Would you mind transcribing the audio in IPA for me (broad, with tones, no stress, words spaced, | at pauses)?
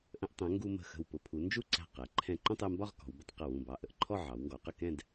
ʔə̃˧ʔtˤɛ̃˩˧ ŋɡu˧mə̤˧˩xə̤˧˩wpʊ˧ pʰu˩˧ nd͡ʒu˥˧ǀæ̤˧˩ qɛ˩˧ ǃʰɛ̃˧˩ǃũ˥˧tˤɛ˧mbɒ˥˧ʁ kɔ̤˩˧wbɪ˥˧tˤ qɪ˧˩wũ˧˩bɑ˧˩ ʔə˧˩ʔǃʰɔ˥˧ ʕɑ˩˧wŋɡɔ˩˧qə˥˧ kɛ̃˥˧d